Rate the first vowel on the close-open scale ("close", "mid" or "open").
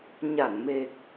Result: open